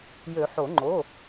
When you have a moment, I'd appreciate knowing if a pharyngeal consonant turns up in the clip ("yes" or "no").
yes